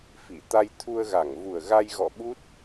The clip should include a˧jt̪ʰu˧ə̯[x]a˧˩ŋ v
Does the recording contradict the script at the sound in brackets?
yes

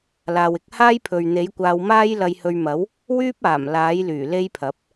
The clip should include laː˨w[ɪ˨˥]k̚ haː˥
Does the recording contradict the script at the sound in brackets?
no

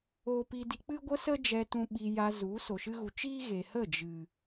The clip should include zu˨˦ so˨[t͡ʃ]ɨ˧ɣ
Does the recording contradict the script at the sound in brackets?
yes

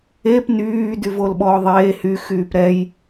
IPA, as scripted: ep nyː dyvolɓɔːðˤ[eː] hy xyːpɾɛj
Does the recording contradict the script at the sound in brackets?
no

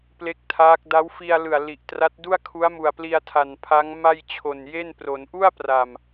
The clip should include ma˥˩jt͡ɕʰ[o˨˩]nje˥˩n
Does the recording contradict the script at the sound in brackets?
no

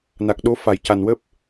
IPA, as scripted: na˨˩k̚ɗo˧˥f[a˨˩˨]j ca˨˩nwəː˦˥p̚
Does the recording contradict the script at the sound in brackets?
no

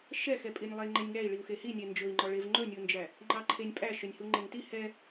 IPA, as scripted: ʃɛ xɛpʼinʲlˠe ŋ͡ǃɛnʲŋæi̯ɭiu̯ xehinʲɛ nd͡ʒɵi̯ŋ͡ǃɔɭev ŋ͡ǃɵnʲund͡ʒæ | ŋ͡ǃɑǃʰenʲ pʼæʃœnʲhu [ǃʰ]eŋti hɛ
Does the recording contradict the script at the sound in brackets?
yes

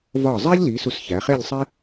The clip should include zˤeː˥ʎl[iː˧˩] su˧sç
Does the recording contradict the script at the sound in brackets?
yes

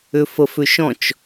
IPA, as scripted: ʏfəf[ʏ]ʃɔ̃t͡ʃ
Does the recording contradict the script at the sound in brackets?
no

